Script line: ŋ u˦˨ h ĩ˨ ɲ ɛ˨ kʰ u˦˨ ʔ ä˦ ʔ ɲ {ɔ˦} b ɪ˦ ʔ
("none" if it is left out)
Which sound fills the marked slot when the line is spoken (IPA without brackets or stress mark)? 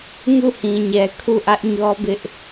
ɔ˦